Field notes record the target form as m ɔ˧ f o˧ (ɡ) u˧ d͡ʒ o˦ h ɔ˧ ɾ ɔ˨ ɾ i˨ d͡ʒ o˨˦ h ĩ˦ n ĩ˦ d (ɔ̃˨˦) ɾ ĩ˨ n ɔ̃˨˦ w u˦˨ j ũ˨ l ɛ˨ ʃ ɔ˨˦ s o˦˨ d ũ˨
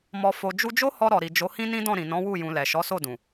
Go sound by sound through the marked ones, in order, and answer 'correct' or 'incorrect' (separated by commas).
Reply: incorrect, incorrect